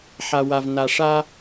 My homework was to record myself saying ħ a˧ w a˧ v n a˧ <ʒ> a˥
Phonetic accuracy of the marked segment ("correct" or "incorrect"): incorrect